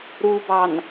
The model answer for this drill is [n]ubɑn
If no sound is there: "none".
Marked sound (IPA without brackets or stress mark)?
ɾ